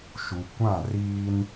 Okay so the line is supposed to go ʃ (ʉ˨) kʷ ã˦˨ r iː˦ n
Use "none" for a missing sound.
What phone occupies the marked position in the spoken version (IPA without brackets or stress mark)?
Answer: u˨